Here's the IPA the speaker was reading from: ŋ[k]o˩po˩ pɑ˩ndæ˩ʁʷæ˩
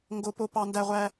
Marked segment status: incorrect: ɡ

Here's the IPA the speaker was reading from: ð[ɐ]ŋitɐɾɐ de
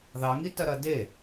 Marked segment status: incorrect: ɑ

